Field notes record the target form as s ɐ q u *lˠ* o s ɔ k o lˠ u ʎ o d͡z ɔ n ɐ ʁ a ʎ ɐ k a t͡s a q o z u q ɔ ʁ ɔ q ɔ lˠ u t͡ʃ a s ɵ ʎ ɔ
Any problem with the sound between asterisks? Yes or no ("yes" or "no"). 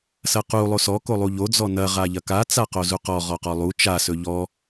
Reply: no